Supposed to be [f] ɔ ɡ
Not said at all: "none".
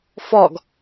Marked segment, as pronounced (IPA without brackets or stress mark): f